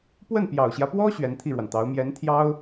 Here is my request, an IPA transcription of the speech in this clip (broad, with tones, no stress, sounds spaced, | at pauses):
p w ə˥˩ n p j ɑ˨˩ ʊ̯ ɕ j ä˦ p w ɔ˥ ɕ ɥ ɛ˧˥ n t̪ʰ i˥˩ ɻ w a˩ n t̪ ɑ˧˥ ʊ̯ m j ɛ˧˥ n t̪ʰ j ɑ˥ ʊ̯